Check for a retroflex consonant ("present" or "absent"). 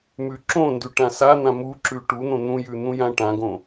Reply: present